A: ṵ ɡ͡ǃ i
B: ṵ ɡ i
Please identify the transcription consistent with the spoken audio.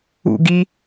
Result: B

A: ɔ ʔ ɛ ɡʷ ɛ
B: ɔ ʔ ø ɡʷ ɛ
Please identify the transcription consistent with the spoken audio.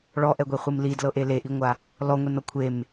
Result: A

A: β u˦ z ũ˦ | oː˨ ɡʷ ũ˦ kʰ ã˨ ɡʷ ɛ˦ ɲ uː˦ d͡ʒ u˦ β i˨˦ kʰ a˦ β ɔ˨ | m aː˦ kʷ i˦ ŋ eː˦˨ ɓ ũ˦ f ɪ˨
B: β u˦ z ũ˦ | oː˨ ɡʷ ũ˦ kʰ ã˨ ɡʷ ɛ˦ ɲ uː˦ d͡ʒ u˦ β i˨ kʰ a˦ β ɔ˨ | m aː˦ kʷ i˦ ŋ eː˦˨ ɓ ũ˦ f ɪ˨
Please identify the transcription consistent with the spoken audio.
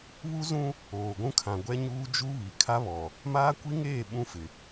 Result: B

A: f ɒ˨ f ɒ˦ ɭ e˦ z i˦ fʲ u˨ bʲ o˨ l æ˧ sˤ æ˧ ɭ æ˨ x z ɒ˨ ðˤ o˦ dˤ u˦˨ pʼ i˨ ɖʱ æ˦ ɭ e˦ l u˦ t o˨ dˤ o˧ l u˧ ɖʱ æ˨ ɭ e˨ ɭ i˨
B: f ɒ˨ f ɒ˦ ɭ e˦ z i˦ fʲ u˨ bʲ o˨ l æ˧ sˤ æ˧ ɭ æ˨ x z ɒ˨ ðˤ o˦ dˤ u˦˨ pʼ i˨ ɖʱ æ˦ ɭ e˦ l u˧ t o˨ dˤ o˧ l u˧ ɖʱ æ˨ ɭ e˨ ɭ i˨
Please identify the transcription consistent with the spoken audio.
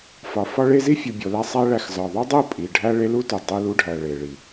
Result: A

